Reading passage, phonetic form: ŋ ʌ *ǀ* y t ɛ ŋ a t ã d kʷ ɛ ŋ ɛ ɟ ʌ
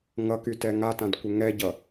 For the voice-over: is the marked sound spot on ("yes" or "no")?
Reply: no